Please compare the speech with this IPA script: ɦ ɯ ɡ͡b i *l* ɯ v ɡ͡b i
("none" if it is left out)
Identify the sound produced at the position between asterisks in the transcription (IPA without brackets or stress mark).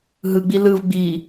l